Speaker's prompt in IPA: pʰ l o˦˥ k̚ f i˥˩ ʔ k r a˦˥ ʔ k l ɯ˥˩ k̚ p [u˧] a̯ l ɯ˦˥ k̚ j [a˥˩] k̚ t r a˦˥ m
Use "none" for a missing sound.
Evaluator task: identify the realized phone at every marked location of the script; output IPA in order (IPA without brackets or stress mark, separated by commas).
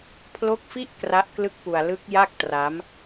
u˧, a˥˩